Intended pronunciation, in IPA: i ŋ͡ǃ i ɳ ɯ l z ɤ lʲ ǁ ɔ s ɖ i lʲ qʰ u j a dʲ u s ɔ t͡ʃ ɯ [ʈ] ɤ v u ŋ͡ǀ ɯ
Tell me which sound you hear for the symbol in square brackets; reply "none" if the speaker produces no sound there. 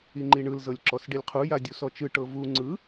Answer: ʈ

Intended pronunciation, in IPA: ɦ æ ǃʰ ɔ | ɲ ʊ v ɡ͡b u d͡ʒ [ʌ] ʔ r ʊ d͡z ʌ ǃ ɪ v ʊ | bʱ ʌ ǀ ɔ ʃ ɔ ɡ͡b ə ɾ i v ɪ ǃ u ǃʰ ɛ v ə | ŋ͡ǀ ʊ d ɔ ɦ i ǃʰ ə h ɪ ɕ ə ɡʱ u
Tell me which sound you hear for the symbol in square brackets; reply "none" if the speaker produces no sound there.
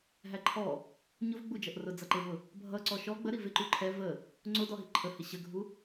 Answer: ʌ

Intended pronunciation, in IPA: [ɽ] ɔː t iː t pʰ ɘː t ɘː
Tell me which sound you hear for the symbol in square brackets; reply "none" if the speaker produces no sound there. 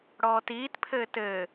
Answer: ɽ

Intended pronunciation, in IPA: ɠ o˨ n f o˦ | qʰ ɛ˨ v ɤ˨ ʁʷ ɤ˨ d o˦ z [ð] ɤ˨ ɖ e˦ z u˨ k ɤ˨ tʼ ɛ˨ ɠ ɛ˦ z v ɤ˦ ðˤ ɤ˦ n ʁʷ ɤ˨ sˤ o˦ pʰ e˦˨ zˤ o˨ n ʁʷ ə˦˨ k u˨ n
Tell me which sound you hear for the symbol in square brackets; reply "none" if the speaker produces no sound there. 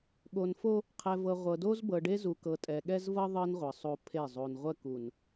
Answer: b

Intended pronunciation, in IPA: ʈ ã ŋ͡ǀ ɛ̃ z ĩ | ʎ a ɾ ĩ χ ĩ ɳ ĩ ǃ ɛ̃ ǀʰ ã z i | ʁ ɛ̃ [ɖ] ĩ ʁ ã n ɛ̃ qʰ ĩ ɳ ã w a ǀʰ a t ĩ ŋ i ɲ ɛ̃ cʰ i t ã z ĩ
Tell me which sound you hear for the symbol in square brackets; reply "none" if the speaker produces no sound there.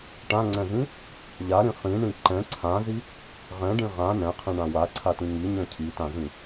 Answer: ɖ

